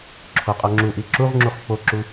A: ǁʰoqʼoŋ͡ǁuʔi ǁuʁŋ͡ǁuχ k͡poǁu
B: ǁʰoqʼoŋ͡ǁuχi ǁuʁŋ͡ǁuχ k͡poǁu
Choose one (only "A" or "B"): A